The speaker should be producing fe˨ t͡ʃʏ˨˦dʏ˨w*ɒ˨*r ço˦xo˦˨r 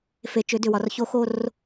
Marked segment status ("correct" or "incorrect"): correct